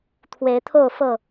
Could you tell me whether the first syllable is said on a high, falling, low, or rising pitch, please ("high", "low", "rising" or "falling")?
rising